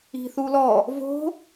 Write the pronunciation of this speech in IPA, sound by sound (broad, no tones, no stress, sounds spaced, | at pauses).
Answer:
i̤ θ u l ɔ | v o̤